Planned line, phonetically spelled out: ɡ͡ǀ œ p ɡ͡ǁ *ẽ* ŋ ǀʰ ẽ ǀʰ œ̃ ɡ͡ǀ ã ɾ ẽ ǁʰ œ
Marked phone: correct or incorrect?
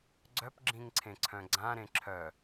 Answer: incorrect